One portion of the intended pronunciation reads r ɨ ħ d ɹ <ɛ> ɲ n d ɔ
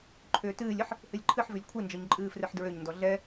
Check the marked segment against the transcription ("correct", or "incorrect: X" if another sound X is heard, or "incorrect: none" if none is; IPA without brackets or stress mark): incorrect: ø